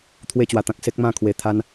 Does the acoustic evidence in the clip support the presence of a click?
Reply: no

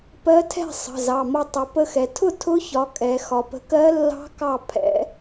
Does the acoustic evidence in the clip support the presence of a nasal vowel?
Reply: no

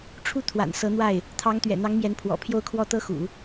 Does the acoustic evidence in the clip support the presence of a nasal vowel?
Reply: no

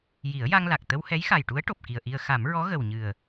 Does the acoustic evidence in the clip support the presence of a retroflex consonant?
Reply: yes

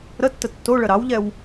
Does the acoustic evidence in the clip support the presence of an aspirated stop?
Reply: no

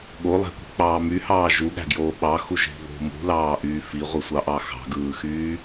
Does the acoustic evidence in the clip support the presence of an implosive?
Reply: yes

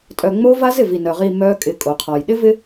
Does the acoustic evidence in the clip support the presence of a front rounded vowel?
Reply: yes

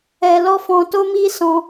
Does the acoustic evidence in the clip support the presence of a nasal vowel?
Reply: yes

